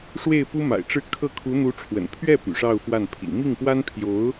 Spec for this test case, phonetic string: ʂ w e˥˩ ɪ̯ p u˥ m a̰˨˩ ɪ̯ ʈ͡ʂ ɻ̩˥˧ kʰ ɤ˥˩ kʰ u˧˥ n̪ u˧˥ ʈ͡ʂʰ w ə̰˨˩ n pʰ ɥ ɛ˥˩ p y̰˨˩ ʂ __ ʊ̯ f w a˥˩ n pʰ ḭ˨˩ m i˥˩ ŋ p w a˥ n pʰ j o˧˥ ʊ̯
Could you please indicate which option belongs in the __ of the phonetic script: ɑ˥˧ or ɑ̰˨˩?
ɑ˥˧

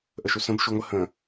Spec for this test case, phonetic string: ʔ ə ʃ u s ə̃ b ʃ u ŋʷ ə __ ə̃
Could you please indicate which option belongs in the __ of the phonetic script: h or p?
h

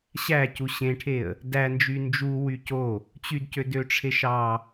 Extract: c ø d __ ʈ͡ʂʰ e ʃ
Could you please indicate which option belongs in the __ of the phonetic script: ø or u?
ø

